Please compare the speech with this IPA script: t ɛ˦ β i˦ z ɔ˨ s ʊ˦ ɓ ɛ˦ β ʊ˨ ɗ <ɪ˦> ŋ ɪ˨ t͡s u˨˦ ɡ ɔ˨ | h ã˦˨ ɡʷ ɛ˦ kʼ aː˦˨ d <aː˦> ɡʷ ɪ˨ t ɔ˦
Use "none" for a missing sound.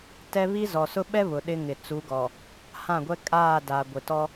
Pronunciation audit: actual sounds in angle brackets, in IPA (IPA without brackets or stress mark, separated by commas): ɪ˦, aː˨